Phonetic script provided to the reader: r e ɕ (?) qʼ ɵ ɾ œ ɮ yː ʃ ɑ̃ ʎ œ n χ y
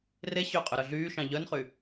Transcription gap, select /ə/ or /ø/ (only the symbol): ø